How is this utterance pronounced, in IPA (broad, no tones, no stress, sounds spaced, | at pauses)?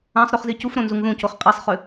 ã sˤ ɾ ʉ χ z i c u f ɾ õ n z u ŋ ð ũ c o χ qʼ i sˤ χ ʉ